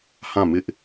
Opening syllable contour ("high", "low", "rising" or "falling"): falling